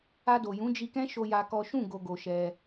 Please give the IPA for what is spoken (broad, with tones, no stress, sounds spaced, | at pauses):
a˧ d o˨ j ũ˨˦ d͡ʒ i˧ k ɛ̃˦ ʃ o˦ j a˦ k ɔ˦ ʃ ũ˦˨ ɡ o˨ ɡ o˨ ʃ ɛ˧